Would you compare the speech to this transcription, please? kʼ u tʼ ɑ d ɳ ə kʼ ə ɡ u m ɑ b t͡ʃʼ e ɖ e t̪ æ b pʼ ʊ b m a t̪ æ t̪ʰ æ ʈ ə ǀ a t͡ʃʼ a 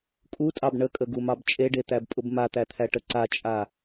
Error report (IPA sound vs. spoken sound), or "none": d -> b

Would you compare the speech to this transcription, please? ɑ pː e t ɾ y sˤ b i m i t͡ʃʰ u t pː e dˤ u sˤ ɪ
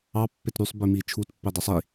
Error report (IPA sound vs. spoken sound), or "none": ɪ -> i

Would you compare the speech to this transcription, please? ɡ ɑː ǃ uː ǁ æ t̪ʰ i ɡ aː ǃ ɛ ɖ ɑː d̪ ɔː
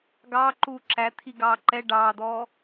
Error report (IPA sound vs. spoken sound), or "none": aː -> ɑː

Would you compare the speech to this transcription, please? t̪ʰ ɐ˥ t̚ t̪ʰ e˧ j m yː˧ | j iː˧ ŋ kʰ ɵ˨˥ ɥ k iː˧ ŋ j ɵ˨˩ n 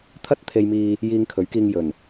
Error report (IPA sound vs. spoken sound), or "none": yː˧ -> iː˧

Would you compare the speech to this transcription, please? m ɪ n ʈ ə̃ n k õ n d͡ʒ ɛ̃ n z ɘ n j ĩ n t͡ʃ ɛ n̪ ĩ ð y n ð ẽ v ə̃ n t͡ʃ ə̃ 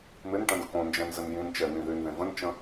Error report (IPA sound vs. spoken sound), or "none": none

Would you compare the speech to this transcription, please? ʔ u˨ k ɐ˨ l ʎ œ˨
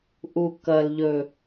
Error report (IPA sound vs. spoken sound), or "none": œ˨ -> ɵ˨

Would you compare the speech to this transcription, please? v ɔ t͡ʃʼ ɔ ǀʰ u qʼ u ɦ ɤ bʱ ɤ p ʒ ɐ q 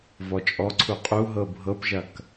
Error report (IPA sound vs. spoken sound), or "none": q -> k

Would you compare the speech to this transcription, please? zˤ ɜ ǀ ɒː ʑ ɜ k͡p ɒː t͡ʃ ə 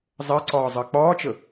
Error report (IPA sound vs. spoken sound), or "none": ʑ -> zˤ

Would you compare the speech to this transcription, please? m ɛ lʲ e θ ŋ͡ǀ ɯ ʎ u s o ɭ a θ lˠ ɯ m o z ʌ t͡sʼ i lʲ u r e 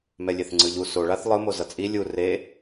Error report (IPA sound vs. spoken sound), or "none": none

